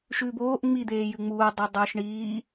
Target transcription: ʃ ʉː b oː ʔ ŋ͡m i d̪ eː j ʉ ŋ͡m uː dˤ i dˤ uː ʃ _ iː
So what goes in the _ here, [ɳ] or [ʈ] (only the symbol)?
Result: ɳ